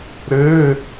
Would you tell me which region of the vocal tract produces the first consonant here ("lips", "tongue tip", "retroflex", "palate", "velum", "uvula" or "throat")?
tongue tip